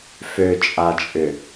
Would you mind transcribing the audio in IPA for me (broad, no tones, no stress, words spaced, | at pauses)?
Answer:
føt͡ʃʼat͡ʃʼʏ